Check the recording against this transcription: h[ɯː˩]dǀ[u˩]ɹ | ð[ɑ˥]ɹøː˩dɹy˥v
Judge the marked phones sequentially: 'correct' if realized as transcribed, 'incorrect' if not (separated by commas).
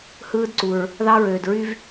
incorrect, correct, correct